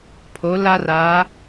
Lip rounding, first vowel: rounded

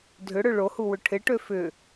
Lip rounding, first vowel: rounded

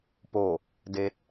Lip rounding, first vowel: rounded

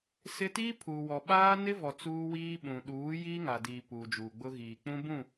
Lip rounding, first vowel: unrounded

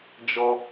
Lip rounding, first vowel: rounded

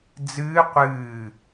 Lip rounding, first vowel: unrounded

